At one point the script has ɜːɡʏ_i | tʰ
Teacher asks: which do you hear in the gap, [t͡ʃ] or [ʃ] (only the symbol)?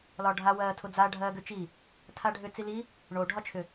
t͡ʃ